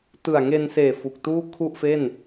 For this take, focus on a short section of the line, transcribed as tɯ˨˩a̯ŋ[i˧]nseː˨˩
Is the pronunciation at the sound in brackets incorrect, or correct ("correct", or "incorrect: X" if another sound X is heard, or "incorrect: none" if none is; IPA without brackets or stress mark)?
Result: incorrect: e˧